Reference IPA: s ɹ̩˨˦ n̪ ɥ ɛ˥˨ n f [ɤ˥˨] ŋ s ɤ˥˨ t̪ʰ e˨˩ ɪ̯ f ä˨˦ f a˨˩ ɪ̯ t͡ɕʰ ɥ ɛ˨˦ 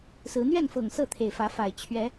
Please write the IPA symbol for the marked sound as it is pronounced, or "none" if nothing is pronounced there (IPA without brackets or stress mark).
ɤ˨˩